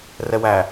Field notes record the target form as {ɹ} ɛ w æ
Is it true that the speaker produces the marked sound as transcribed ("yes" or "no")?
no